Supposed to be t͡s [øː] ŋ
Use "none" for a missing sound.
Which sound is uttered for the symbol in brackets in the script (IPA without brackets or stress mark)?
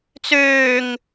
øː